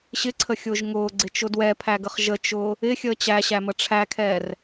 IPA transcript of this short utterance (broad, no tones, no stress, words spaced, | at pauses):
ɕɪǀʰəxʲʊːʒ ŋʊːɡ͡ǀɪt͡ʃʊ dwɛpʰæɡəχ ʒət͡ʃʊː | ɪxʲəː t͡ɕæɕæmə ʈ͡ʂʰækʰɛːr